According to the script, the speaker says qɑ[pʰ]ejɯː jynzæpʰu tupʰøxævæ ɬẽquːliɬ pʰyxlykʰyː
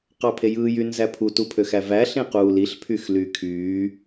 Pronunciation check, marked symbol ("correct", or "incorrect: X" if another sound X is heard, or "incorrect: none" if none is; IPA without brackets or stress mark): correct